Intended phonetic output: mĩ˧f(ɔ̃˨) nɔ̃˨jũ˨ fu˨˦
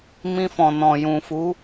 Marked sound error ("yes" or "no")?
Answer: no